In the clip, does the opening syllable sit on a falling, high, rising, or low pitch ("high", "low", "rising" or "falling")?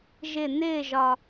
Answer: falling